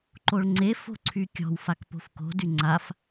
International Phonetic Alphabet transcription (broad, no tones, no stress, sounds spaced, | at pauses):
ǃ o ɭ ŋ͡ǀ e f o̤ ǀʰ y kʲ ɔ̤ w f a k p o̤ f k o̤ d y ŋ͡ǀ a f